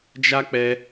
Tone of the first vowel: high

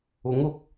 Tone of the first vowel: rising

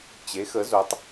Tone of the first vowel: rising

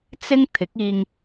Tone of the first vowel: high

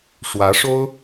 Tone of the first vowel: rising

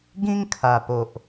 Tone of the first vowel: high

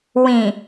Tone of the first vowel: low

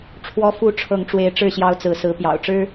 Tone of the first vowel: high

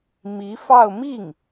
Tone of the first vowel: rising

